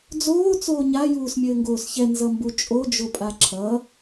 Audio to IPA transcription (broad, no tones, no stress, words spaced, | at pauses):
d͡zoː t͡soːɲa juːsmʲɘːŋɡoːsçɛ nzʌmbut͡ʃʼo d͡ʒopʼaǁʰʌ